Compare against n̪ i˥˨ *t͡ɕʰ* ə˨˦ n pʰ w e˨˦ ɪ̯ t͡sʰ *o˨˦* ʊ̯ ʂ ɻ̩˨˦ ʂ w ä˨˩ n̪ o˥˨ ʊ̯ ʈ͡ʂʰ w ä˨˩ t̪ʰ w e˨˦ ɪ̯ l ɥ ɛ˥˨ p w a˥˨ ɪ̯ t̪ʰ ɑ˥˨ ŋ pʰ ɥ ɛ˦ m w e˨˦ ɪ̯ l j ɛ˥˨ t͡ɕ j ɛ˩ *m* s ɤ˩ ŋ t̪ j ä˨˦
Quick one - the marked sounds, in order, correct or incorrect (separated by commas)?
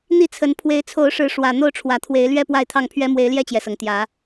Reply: incorrect, correct, incorrect